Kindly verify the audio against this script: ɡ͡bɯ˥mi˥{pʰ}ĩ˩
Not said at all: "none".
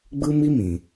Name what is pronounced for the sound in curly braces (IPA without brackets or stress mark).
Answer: m